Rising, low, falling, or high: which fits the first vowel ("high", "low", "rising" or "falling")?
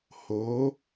rising